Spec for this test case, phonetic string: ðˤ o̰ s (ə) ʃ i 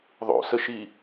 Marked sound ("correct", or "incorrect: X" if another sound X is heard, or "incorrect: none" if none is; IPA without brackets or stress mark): correct